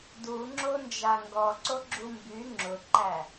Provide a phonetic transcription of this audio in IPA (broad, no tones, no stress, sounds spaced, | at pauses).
d u ŋ͡ǁ o n d͡ʒ a ŋ ɡ ɔ ǀ o ɡ͡ǁ u m b y ŋ͡ǁ ʊ ǃ æ